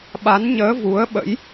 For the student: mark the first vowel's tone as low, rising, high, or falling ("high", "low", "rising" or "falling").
rising